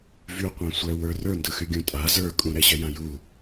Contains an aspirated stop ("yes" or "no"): no